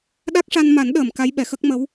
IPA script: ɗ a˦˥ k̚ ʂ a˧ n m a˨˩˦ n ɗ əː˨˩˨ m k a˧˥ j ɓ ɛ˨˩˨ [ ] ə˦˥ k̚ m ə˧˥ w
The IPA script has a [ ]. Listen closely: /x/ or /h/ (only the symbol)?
x